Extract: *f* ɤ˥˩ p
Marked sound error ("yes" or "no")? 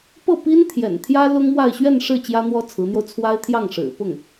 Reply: yes